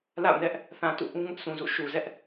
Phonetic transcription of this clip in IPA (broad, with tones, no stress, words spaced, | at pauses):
la̰˦˨ʊ̯nɛ˦ʔ | θã˨tṵ˦˨ʔũ˦ŋʊ˦ʔ sũ˨zṵ˦˨ ʃu˨zɛ˦ʔ